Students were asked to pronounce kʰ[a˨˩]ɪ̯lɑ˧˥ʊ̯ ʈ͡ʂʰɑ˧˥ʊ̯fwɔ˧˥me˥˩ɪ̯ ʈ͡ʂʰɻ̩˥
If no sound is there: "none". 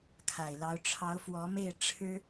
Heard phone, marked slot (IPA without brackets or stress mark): a˨˩